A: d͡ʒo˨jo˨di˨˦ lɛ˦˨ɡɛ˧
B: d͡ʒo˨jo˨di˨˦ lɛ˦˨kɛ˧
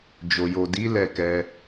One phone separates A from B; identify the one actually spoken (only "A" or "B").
B